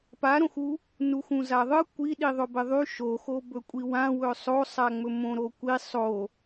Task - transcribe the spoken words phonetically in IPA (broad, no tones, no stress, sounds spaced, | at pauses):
p a ɾ õ x u | n u x ũ z a ðˤ ɯ kʷ i ɗ i ðˤ ɵ b ɪ ðˤ y ʃ o x o b ɵ kʷʼ i w ã w ɵ sˤ o sˤ a ŋ͡m ɵ m õ ɾ o kʷ i sˤ o